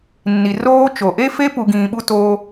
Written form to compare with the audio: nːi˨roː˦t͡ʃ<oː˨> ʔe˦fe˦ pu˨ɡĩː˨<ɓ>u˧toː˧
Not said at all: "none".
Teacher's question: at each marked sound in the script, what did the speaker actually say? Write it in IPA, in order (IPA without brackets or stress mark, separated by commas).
o˨, ɓ